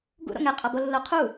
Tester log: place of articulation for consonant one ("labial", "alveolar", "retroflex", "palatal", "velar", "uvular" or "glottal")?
velar